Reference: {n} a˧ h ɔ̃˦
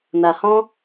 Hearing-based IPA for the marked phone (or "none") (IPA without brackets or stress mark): n